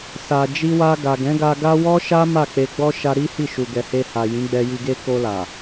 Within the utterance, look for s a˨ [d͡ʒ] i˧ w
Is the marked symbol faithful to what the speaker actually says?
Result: yes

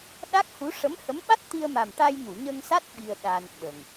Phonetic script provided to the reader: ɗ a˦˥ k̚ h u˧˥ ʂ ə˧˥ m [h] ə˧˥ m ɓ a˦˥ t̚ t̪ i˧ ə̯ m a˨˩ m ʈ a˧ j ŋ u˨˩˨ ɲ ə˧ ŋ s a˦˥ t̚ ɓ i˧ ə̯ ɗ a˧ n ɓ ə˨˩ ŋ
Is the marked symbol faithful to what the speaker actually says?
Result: yes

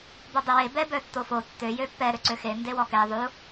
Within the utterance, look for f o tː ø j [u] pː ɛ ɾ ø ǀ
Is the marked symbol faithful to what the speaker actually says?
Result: no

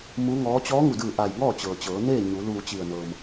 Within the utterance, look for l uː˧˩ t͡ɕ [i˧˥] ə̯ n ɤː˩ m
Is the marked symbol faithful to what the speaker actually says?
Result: no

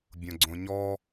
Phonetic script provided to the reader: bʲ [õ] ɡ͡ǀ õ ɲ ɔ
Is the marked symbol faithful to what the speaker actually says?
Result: yes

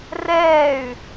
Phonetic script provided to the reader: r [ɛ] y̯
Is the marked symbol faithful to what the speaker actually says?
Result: no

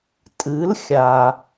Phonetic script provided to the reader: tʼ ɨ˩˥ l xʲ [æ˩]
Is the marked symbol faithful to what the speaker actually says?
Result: no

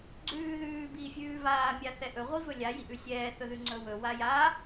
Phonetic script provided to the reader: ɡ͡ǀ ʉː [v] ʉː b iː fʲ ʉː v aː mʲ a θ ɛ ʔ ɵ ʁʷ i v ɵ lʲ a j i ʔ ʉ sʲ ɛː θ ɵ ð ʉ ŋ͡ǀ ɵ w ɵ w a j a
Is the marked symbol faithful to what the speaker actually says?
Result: no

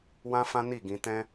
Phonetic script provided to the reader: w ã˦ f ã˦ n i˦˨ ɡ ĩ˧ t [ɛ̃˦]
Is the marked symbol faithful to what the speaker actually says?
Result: yes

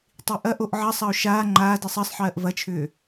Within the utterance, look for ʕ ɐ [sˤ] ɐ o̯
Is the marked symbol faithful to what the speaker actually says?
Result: yes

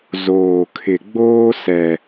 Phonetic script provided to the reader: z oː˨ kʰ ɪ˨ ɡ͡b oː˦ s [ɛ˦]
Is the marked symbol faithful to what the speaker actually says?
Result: yes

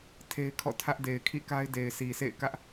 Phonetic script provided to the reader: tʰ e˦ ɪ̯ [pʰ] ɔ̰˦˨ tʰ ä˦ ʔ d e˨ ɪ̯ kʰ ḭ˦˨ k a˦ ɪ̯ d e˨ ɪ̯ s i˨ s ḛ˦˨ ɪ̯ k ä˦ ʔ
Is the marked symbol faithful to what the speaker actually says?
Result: no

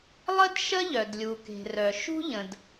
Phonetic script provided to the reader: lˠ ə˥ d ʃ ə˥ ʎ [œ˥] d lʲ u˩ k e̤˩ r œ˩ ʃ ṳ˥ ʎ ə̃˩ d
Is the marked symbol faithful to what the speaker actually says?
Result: no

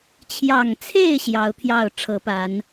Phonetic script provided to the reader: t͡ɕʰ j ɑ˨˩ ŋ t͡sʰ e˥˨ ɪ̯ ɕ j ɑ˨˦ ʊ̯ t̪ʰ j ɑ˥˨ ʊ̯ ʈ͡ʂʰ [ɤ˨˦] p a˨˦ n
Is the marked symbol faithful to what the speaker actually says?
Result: yes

